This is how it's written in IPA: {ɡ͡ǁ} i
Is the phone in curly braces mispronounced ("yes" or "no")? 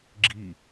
no